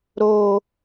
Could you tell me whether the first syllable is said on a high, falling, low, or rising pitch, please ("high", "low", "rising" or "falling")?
high